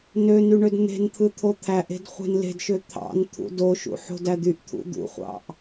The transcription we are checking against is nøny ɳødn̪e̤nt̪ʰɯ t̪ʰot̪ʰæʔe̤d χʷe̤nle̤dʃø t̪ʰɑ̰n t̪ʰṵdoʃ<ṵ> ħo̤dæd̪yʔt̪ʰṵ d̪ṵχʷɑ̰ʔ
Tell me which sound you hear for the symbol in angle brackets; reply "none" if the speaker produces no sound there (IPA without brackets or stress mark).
ṵ